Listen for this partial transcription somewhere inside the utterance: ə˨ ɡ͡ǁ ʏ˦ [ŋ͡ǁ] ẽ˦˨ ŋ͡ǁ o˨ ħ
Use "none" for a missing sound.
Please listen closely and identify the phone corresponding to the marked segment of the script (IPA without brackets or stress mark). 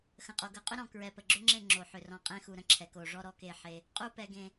ŋ͡ǁ